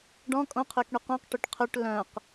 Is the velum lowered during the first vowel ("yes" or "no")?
yes